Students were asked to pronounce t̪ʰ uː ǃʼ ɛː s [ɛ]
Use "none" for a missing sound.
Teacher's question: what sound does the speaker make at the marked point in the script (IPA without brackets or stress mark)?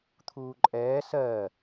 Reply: ɜ